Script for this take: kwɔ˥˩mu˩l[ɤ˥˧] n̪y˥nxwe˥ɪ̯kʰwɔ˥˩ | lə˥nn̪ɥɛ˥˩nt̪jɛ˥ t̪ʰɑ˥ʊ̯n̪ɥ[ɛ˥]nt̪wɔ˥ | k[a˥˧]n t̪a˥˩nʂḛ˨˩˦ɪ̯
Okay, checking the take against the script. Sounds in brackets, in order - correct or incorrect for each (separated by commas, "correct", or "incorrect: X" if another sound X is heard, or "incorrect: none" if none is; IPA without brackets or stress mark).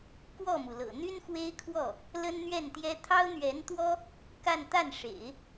incorrect: ɤ̰˨˩, incorrect: ɛ˧˥, correct